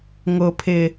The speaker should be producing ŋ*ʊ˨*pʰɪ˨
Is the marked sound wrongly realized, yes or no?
no